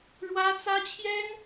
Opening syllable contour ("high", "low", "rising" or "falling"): high